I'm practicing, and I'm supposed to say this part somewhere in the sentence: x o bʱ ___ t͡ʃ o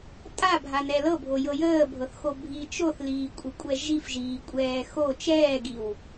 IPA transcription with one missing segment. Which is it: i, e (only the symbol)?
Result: i